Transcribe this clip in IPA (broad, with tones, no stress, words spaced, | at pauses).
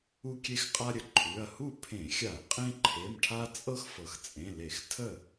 u˦kʲe˦xqʼa˦ɾʲə˩ ǃʰʉ˩˧˩ɐ̯ hu˥˩pʰẽ˧˩˧xʲa˧˩˧ɐ̯ qʼẽ˦ ǃʰe˩˧˩mʈʰa˦t͡sʼɤ˦x fɤ˩xt͡sʼẽ˩˧˩le˧˩˧x tʰə˥˩